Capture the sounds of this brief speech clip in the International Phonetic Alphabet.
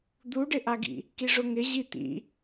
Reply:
d̪ u ɖ ɪ ʔ a ɡ ḭ | k i ʐ ʊ ŋ ɪ ʑ i t̪ ḭ

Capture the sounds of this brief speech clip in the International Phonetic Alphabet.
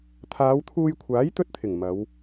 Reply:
t̪ʰ aː˨˧ w t̪ʰ uː˧ j kʷʰ aː˨˥ j t̪ ɵ˥ t̚ t̪ʰ ɪ˨˩ ŋ m ɐ˨˧ w

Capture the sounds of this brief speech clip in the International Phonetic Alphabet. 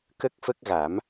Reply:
k ə˦˥ k̚ f ə˦˥ k̚ ɣ a˨˩˦ m

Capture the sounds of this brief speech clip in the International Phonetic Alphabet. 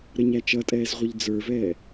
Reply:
ɾ ə ɲ æ t͡ʃ ʌ tʼ ɛː z ʁʷ ə ʎ d͡z ə˞ v ɛː

